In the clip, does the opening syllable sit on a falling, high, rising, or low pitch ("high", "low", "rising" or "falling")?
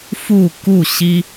falling